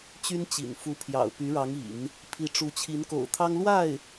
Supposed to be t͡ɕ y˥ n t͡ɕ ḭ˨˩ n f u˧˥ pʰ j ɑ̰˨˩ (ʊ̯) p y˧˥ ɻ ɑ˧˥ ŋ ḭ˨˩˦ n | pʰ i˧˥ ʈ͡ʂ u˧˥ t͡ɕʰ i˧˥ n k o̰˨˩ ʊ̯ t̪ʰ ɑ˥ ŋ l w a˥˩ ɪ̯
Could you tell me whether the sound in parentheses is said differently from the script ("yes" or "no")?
no